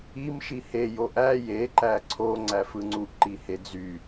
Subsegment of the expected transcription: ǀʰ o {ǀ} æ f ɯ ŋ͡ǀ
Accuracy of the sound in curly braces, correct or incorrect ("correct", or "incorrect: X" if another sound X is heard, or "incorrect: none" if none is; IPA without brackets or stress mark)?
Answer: incorrect: ŋ͡ǀ